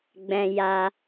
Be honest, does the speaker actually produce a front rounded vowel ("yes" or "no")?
no